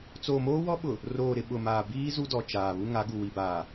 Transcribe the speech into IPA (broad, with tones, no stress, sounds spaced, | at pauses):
t͡s oː˨ m oː˦ w ɔ˦ ɓ ʊ˨ | r oː˨ ɾ ɪ˨ ɓ ʊ˨ m aː˨ b iː˦ z u˦ d ɔ˨ t͡ʃ aː˨ β u˦ ŋ a˨˦ ɡ u˨ w i˨ b aː˨